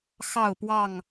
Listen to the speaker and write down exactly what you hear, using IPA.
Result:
x ɑ˥˨ ʊ̯ p w ɑ˥˨ ŋ

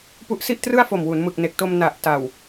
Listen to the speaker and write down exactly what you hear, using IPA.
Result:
p u˦˥ ʔ s i˥˩ ʔ t r ɯ˥˩ a̯ f o˨˩ m w u˩˦ n m ɯ˨˩ k̚ n e˨˩ k̚ t o˧ m n a˨˩ ʔ t a˨˩ w

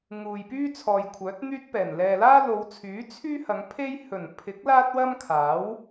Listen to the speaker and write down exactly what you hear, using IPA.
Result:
ŋ uː˨ j p yː˥ t͡sʰ ɔː˨ j kʷʰ œː˨˥ t̚ n̪ yː˥ t̚ p ɛː˨˩ n l ɛː˨ l aː˥ l o˨˧ w t͡sʰ yː˨˥ t͡sʰ yː˥ h ɐ˨˧ ŋ pʰ e˥ j h ɵ˨˩ n pʰ ɪ˨˥ k̚ l aː˥ t̚ w ɐ˥ m kʰ aː˨˥ w

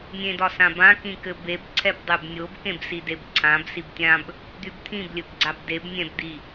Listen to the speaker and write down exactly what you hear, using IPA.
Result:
nʲ ẽ d ɒ s ã b ã k ĩ k ɘ b e b ǀʰ ɛ b dˤ y b nʲ o b k ẽ b s i d e b ǀʰ ã b s i b tʲ ã b | d̪ y b t̪ʰ ĩ b lʲ ɘ b ɡ͡ǀ a b d e b nʲ ɛ̃ b d̪ i

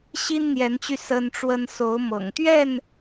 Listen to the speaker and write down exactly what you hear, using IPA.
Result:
ɕ i˦ n n̪ j ɛ˨˦ n t͡ɕ y˧ s ə˦ n ʈ͡ʂ w ə˦ n s o˨˦ ʊ̯ m ɤ̰˨˩ ŋ t̪ ɥ ɛ˥˨ n

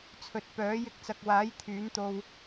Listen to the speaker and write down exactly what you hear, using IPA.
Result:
t͡sʰ ɵ˨ t̚ p œː˨˥ j ɪ˧ k̚ t͡s ɐ˨ k̚ w aː˨˥ j t̪ʰ yː˨˥ n t̪ o˧ w

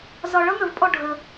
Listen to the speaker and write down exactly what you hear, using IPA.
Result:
z ɒ˧ ɭ ʌ˥ ŋ ə˧ v pʼ ɔ˥˧ ɖʱ ə˧

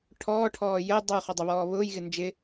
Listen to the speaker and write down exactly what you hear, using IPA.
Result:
ʈʰ ɔː ʈʰ ɔː j ə dˤ u χ ɔ dˤ ɪ β ɔː β ʊː j ɣ ɪ n d͡ʒ ɪ

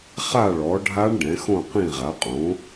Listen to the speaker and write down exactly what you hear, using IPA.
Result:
χ a˥˨ ɭ ɔ˩˥ ɖʱ a˦˥ ɳ ɖ ɛ̃˩˥ x õ˥˨ q ĩ˥˨ ʁ a˩˥ qʼ õ˩˥

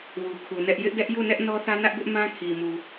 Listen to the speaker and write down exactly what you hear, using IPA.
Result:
w u˨ kʰ u˨ n ɛ˦ ʔ j ɪ˦ ʔ d ɛ˦ ʔ j u˦˨ n ɛ˦ ʔ n ɔ˦ θ ä˦ n ä˦ ʔ b ɪ˦ ʔ m ã˦ kʰ i˨ m u˨

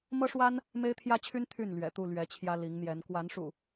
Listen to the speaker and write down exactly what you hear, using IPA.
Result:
m ɤ˦ ʂ w a˦ n | m e˦ ɪ̯ t̪ʰ j ä˦ t͡ɕʰ y˦ n t̪ʰ y˥˨ n l ɥ ɛ̰˨˩ t̪ u˥˨ l ɥ ɛ˨˦ t͡ɕʰ j ä˦ l i˨˦ ŋ n̪ j ɛ˨˦ n k w a˨˦ n ʂ ṵ˨˩

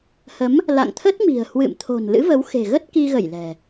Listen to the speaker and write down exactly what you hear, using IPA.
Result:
h ə˨˦ m | l a̰˧˨ ŋ t̪ʰ ə˦˥ t̚ m i̤˨˩ ə̯ h w ɨ̰˧˨ m t̪ʰ o̤˨˩ n l ɨ̰˧˥ v ə˨˦ w x e̤˨˩ ɣ ə˦˥ t̚ k i˧ ɣ ə˧˩ j l ɛ̤˨˩

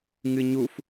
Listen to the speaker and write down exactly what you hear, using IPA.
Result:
ŋ ɨ ɲ u f

